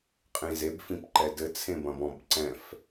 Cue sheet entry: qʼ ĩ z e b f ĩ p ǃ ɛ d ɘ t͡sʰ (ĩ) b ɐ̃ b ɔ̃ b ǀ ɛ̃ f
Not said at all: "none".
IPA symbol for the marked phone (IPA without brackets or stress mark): ẽ